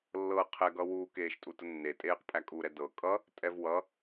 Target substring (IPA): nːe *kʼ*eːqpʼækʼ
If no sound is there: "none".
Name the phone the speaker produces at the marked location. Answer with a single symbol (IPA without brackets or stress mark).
tʼ